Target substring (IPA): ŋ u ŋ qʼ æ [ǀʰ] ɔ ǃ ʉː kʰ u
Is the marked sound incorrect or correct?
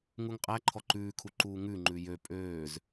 incorrect